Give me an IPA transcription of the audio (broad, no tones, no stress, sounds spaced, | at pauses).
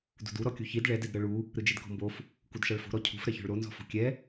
d ṳ d u ɾ ɔ kʲ u ç i d ɭ ɛ d ɛ d ɾ ɤ ɭ u | ɾ ɯ d͡ʒ e d k ɔ̤ m b o f | k u d ʃ a ɭ f o̤ ɾ ɔ cʰ ṳ f ɾ ɛ ç ɔ̤ ɭ ɾ o n z ɔ̤ f o̤ kʲ ɛ